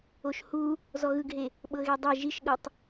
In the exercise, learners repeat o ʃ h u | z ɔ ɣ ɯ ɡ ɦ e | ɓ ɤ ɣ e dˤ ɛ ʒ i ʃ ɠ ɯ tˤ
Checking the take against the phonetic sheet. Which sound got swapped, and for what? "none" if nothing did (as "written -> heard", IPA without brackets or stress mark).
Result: none